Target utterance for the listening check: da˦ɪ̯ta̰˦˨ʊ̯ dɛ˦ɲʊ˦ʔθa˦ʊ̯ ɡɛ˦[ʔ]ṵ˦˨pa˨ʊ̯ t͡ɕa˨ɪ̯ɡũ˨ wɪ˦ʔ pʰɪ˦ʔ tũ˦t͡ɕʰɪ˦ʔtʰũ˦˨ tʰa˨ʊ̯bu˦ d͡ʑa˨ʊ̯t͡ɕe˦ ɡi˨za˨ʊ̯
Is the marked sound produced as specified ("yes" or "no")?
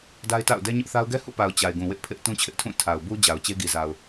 no